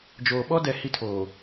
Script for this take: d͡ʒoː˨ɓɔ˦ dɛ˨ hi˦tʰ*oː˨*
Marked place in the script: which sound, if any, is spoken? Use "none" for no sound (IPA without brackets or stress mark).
oː˨